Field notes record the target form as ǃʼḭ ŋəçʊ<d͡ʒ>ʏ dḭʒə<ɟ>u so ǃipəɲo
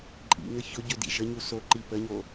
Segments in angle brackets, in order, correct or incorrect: incorrect, incorrect

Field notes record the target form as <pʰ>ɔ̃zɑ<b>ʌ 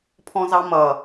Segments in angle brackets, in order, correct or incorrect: correct, incorrect

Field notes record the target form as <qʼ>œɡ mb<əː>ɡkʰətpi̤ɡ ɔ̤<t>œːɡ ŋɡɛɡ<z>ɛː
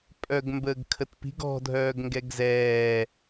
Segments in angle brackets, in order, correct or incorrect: incorrect, correct, incorrect, correct

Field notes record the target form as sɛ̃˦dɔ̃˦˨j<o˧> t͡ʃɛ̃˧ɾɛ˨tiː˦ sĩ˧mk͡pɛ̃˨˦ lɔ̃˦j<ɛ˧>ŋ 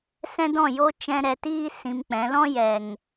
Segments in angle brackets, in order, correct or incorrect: incorrect, incorrect

